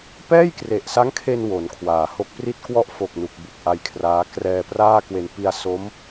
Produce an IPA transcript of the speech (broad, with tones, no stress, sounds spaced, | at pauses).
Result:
p ɛː˥˩ j k r e˨˩ ʔ s a˦˥ ŋ kʰ e˧ n w o˩˦ n kʰ w aː˩˦ h o˦˥ k̚ p r i˥˩ t̚ k w ɔ˥˩ ʔ f o˨˩ k̚ n u˨˩ k̚ b u˨˩ k̚ ʔ a˧ j kʰ r aː˦˥ k r ɛː˧ p r aː˥˩ k w e˧ n p i˧ a̯ s o˦˥ m